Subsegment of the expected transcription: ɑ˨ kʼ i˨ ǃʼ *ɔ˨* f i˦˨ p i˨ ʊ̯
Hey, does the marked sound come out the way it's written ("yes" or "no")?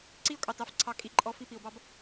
yes